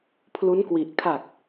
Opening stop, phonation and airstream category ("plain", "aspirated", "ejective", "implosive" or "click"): aspirated